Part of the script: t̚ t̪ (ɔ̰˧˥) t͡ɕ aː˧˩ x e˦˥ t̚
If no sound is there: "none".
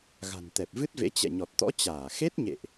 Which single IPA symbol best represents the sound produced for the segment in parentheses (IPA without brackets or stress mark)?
ɔ̰˧˥